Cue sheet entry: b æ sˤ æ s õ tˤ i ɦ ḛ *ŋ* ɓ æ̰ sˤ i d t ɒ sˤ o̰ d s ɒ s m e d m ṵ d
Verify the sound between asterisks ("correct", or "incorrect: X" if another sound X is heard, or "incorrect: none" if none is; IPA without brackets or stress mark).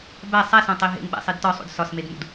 correct